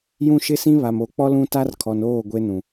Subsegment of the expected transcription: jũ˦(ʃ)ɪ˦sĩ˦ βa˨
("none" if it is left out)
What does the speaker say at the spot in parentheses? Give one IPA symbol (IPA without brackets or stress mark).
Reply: ʃ